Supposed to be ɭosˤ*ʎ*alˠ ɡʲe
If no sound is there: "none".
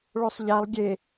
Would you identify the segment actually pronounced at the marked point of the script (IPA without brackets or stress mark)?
ʎ